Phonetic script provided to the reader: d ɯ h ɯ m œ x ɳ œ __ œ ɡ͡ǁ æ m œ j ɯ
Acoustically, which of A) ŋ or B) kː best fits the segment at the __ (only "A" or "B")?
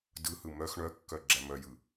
B